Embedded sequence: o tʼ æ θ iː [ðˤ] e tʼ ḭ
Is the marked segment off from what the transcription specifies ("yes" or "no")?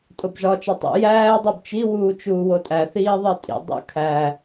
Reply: no